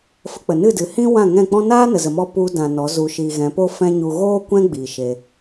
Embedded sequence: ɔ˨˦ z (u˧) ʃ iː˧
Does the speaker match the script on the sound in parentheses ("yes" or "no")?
yes